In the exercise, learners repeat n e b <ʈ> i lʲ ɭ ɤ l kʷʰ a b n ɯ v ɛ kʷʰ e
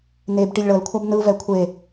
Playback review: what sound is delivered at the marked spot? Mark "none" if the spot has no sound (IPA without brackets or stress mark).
ʈ